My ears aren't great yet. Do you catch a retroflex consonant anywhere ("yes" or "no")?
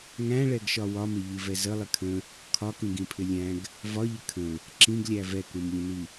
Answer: yes